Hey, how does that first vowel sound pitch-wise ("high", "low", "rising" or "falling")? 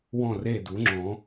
falling